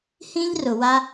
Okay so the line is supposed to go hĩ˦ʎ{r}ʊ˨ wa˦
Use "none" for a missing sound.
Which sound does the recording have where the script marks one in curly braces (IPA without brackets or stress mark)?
r